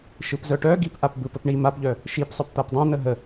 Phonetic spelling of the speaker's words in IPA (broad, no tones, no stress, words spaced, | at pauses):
ʃɯpzœʈœɡip ʔapbɯp əpɳi mapʎœ | ʃipsˤœp t̪apdˤãn̪ə ɦə